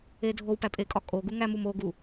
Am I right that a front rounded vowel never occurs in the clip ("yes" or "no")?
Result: yes